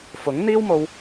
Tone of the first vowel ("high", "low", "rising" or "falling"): rising